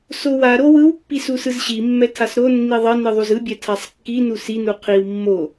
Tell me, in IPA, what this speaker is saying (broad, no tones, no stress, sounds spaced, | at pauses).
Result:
s o w a ɾ o w ɯ w pː i s u s ɯ z ɕ i mː ɛ tʰ a s ɾ o nː i ðˤ ʌ n ɯ ðˤ u z ɯ bʲ ɛ tʰ a sˤ kː i n u s i n u qʰ i w mː o